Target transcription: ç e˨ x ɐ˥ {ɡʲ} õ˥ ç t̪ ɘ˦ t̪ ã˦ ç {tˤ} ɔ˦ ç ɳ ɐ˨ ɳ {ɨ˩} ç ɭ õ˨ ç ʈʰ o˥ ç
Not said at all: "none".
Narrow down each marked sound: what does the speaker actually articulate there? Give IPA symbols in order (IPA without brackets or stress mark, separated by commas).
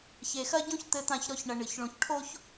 ɟ, ɾ, ɨ˩